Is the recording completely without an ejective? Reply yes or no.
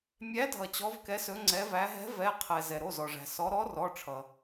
yes